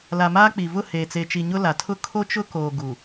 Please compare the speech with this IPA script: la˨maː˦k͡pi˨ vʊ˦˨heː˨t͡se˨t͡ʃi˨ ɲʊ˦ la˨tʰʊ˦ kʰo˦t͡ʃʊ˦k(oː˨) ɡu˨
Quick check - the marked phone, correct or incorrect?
correct